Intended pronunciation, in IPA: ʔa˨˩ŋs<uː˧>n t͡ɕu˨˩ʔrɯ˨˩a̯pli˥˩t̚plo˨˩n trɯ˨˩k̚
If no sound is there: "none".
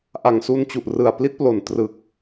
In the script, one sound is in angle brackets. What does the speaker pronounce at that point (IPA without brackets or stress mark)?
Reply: u˧